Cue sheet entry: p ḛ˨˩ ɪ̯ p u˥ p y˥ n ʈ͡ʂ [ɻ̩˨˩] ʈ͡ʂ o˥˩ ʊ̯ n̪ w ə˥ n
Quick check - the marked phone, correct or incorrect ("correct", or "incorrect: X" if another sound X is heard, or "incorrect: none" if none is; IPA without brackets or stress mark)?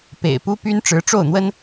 incorrect: ɻ̩˧˥